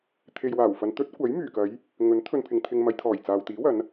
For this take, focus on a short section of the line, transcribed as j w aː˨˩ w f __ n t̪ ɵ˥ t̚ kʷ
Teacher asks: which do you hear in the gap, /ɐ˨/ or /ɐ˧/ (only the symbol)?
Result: ɐ˨